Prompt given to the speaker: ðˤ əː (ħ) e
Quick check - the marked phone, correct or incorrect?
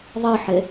correct